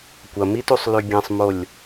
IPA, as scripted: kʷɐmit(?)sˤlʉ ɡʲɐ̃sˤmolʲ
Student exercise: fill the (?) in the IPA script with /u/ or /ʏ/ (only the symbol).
u